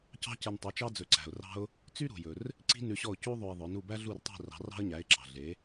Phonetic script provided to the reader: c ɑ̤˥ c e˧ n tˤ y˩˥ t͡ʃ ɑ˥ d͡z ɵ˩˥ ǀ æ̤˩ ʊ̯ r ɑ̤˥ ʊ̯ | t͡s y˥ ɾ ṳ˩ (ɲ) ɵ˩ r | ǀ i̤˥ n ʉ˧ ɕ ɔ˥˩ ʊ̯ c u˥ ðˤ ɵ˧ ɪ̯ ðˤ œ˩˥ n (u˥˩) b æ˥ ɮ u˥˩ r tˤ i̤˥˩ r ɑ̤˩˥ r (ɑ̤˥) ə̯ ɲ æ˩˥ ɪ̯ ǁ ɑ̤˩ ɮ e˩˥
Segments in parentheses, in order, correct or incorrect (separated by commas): incorrect, correct, correct